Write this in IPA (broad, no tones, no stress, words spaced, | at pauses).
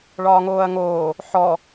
ɭɒːŋoːɐ̯ŋoː | ħɔ